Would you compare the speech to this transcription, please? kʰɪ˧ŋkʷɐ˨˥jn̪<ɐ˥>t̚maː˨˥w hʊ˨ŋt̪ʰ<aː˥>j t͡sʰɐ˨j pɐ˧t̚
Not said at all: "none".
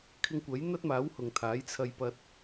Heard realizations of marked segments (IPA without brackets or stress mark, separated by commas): ɐ˥, aː˨˥